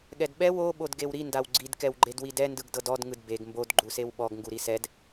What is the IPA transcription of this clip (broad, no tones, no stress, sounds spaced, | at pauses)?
ɠ ɛ d ɓ ɛ w o ɓ o d ɡ e w ɾ i n d a w ɡ͡ǀ i d k ɛ w ɡ͡ǃ e d w i d ɛ n d ɯ ɡ d ɤ d ɔ d ŋ ɯ d b e ɡ m b o d ɡ͡ǃ u s e w ɓ ɔ ɡ ŋ ɡ u ɾ i s ɛ d